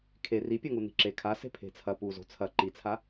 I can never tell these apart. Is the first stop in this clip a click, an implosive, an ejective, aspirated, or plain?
aspirated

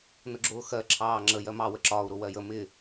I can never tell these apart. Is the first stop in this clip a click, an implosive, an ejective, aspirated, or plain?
click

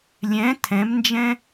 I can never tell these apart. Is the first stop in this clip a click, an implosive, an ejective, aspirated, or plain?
aspirated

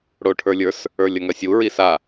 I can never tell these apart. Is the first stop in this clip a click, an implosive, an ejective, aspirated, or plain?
aspirated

